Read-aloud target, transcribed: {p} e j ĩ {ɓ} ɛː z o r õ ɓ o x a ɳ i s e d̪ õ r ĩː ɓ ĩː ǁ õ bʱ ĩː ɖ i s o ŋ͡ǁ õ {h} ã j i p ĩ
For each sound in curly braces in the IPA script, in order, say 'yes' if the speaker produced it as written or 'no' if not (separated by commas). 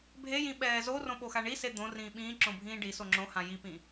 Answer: no, yes, yes